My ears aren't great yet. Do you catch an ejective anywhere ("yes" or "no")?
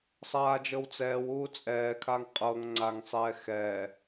yes